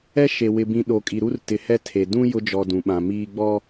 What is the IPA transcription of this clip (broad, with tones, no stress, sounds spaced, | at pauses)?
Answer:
ɛ˦ ʃ e˨ w ɪ˨ b ĩ˨ ɗ o˨ kʼ i˨ ɾ u˦ r t ɪ˨ h ɛ˦ tʰ e˨ d ũ˦ j ʊ˦ d͡ʒ ɔ˨ d ũ˨ ɓ ã˨ m iː˦ ɡ͡b ɔ˦